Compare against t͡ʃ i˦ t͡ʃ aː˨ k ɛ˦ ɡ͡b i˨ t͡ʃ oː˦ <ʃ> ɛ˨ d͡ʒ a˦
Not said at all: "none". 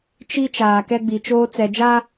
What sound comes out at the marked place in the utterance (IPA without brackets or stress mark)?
t͡s